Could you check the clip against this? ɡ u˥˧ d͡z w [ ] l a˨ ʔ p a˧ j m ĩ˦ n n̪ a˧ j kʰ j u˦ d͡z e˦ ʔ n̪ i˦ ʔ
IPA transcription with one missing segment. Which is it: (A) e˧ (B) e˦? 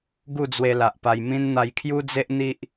A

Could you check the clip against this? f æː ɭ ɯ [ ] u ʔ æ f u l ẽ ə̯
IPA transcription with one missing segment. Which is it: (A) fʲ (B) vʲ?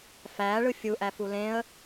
A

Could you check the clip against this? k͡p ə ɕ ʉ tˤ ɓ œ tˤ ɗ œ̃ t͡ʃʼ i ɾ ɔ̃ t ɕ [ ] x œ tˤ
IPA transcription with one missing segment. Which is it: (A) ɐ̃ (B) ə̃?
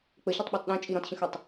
B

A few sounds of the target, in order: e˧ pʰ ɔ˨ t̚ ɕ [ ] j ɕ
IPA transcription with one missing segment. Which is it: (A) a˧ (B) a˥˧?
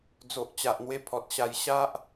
A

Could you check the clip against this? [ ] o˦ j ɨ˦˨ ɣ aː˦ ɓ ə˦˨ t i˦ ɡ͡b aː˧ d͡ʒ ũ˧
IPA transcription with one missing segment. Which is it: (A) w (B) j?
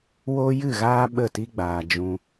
A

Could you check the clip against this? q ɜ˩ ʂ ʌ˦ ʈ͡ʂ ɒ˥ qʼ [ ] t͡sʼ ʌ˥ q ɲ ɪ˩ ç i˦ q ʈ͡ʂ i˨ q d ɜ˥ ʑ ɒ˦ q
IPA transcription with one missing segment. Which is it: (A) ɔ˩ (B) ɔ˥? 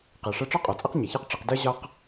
A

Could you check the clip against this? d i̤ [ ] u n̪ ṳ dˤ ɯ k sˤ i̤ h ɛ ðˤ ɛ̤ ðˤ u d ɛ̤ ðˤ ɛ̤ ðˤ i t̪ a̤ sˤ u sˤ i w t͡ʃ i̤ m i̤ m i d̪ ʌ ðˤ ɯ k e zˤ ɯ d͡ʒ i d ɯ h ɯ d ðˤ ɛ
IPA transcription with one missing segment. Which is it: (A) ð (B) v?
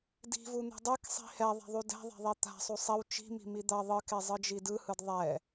B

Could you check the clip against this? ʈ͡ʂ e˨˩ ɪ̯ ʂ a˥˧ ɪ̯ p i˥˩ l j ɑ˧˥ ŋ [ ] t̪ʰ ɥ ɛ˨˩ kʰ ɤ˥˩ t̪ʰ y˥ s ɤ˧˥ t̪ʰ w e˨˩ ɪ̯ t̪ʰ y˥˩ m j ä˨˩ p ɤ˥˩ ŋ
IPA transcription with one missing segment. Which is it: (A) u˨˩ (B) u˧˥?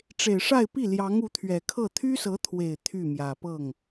B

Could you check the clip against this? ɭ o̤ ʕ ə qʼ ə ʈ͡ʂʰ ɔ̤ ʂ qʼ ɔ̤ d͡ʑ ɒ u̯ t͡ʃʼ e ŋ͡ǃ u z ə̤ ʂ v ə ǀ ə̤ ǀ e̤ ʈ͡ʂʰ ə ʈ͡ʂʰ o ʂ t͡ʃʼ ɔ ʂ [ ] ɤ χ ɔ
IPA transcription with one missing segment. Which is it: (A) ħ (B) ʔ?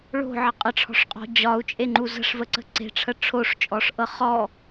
B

